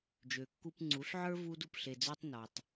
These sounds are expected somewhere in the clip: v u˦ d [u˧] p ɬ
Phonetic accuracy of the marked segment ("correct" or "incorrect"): correct